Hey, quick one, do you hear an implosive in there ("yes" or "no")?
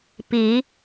no